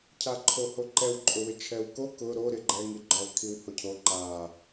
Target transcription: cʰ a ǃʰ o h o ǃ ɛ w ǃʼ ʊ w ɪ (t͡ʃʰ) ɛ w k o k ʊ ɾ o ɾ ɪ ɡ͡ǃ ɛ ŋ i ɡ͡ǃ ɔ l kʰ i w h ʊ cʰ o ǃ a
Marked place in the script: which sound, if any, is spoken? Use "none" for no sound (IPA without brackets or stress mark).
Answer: t͡ʃʰ